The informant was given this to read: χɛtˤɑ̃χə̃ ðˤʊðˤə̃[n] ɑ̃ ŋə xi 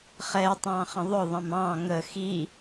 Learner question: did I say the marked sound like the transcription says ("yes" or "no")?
no